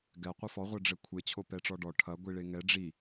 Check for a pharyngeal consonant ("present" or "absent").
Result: absent